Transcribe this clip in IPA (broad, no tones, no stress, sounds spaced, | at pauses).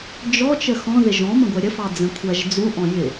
d͡ʒ ɔ t͡ʃ ə x ɔ̃ ð ɪ ʒ ɔ̃ m ə̃ ɡʷ ɛ ɾʲ ə f ɑ d͡z ə̃ kʷʰ æ ʒ d͡z u ʔ ɔ̃ j ɪ